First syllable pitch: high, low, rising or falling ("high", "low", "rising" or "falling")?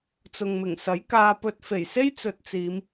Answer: low